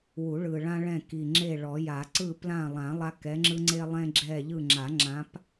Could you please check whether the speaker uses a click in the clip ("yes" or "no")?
yes